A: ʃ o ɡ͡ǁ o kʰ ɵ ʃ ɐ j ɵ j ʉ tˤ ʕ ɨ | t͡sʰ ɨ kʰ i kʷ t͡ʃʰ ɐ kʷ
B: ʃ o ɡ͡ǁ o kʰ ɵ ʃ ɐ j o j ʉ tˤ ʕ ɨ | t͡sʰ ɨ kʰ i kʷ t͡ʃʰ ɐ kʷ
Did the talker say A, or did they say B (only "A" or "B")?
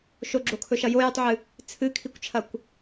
B